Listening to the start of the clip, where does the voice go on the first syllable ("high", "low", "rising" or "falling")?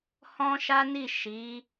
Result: high